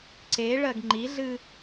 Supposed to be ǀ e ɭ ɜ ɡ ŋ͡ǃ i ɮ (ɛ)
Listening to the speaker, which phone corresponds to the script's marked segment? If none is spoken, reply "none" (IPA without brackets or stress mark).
ɨ